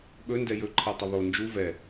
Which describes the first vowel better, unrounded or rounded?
rounded